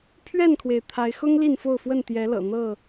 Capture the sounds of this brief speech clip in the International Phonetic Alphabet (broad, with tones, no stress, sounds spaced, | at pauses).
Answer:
pʰ ɥ ɛ˥˨ n kʰ w e˩ ɪ̯ t̪ʰ a˨˦ ɪ̯ x ʊ˦ ŋ l i˥˨ n f o˥˨ ʊ̯ f w ə˥˨ n t̪ j ɛ˨˦ l ɤ̰˨˩ n̪ ɤ˥˨